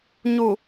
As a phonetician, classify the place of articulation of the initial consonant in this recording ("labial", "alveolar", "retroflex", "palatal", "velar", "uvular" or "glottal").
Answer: palatal